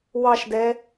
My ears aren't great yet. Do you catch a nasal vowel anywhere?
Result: no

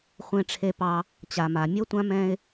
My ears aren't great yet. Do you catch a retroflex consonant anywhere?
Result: yes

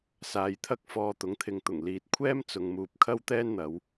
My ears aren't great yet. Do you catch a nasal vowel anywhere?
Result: no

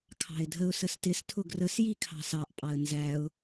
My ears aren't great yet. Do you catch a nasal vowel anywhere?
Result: no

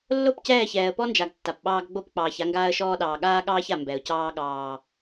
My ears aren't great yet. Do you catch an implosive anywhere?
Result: yes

